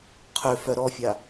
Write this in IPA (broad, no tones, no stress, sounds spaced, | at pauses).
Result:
qʰ ø f œ ɾ ɔ fʲ a